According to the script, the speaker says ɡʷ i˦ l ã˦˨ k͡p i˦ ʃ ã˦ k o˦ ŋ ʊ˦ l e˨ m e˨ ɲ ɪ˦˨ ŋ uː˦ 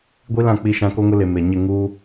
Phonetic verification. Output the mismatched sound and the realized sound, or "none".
none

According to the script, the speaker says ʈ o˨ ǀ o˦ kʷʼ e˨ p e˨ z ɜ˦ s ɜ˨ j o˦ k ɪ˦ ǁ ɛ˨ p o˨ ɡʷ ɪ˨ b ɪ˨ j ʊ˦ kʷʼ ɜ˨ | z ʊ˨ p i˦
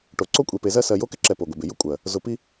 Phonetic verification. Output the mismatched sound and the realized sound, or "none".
none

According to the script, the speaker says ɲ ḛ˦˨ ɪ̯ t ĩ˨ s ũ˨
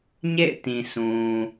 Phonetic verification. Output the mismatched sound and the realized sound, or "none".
none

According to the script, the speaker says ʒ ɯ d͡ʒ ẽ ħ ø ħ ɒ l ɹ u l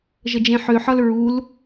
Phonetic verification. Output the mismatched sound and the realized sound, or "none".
ɯ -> ə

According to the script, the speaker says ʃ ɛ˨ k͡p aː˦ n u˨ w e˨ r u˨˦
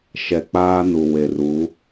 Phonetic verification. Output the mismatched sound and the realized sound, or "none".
none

